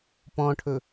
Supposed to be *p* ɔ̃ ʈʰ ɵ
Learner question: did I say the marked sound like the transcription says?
yes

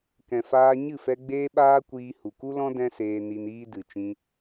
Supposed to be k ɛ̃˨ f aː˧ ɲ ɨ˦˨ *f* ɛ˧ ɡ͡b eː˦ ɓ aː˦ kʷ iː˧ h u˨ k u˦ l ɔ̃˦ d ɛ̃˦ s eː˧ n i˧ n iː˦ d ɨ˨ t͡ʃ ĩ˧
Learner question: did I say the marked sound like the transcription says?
yes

